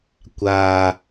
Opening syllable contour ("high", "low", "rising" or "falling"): low